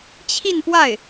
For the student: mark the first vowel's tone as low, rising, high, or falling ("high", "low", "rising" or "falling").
falling